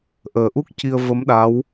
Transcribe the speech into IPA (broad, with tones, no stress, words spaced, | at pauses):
ʔəː˨˩ʔu˦˥k̚ ci˧ə̯və˧˥m ɗa˧˥w